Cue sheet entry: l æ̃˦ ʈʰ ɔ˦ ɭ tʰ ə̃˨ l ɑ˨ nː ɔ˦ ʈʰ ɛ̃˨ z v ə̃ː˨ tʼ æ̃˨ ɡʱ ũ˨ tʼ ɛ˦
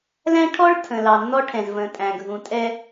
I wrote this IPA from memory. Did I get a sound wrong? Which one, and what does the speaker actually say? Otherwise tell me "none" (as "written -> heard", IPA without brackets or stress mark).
none